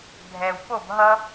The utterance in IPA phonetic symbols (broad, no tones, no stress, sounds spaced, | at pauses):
bʱ ɛ w p o b ɦ ʌ